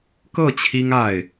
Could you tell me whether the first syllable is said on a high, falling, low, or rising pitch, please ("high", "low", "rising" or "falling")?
falling